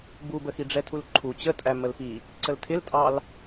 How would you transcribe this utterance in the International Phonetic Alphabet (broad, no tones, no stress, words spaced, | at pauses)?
bubə xiɖ͡ʐɛtʰulǃʰu t͡ɕətʼæ məlpi | ǀəltʰɪltʼɑl